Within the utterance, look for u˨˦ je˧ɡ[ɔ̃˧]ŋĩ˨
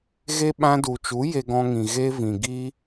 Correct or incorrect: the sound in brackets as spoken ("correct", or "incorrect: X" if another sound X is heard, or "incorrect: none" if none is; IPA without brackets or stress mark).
correct